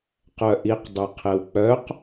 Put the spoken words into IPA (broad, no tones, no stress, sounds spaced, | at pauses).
q œ ʔ i q dˤ ø qʰ e w k͡p œ q